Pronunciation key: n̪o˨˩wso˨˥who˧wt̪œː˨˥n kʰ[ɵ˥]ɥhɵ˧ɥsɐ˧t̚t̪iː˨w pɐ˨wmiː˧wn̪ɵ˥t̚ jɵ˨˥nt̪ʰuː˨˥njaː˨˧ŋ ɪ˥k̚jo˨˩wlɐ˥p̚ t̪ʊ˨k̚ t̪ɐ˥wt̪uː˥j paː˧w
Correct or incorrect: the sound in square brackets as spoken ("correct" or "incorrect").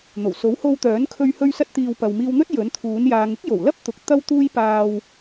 incorrect